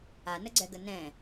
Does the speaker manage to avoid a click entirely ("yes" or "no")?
no